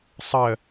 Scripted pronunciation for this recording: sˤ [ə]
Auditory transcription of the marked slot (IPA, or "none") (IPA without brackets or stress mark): ə